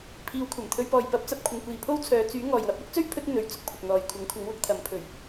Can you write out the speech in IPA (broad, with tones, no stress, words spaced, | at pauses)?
pʰiː˨wkʷʰɐ˨˩mt̪ʰɵ˧ɥpɔː˨j pɐ˨˥p̚t͡sɐ˨p̚ kʷʰɪ˨ŋkʷiː˨ pʰo˥wt͡sʰœː˨˧ t͡syː˨˥ ŋɔː˨j wɐ˧p̚wɪ˥k̚t͡sɵ˥ɥ pʰɵ˥t̚n̪ɵ˨ɥ t͡sʊ˥k̚pʰʊ˨k̚n̪ɔː˨jkʷʰɐ˨˥ŋ kʷʰɐ˨˥ŋwʊ˨˥k̚t̪ʰɐ˨˥mpʰɵ˨˩ɥ